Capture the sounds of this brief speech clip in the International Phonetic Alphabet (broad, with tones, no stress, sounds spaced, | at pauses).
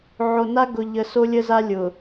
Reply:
ʕ o˨ n a˦ ɡ ʊ˨ ʎ ə˨ s o˦ lʲ ə˦ z a˦ lʲ ʊ˨